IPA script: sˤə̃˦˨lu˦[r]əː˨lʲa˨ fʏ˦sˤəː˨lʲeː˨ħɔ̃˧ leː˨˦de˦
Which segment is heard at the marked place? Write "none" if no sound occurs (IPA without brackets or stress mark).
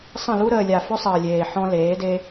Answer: ɾ